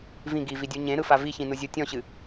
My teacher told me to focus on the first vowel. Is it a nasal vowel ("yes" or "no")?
yes